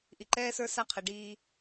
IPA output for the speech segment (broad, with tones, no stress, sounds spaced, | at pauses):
ʔ i˨ ǃ ɛː˦ s ə˞˦ s a˦ qʰ ɛ˨ ɖ iː˦